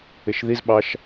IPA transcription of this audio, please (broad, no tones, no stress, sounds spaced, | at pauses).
ɪ ʃ ð i z ɓ ɑ ʃ